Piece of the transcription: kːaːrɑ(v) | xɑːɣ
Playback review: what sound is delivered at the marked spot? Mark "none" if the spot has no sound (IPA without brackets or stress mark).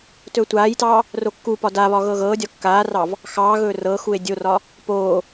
v